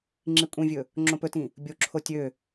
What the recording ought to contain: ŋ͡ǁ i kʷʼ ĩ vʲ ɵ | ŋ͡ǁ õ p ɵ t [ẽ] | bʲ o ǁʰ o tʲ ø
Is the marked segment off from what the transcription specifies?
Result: yes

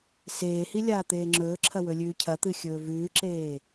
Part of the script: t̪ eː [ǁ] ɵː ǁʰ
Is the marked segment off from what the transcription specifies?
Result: yes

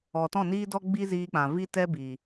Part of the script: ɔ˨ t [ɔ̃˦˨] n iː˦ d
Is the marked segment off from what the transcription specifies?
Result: no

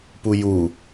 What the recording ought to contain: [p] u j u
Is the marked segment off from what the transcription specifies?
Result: no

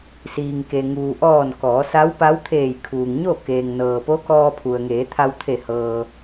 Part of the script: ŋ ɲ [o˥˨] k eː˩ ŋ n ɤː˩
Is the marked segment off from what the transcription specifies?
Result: no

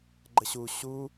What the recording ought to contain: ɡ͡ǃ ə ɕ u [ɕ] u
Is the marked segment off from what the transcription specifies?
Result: no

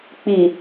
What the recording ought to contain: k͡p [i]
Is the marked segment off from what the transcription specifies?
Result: no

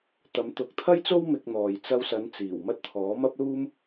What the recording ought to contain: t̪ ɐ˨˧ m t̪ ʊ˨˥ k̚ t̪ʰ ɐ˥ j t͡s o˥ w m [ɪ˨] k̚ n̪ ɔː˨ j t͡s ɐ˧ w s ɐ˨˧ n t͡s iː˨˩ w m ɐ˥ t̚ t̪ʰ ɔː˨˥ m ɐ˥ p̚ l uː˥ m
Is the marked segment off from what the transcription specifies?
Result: yes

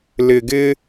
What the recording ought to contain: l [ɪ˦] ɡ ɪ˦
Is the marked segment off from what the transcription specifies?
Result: yes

